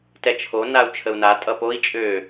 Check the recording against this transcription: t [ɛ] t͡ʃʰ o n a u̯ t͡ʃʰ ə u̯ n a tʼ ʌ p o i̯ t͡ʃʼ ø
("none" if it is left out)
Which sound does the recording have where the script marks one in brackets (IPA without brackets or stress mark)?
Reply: ɛ